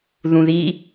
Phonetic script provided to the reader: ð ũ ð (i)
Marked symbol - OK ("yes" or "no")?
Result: yes